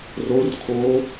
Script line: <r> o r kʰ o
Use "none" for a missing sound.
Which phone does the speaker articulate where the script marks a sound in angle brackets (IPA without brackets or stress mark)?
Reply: r